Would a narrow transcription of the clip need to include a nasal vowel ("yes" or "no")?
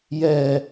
no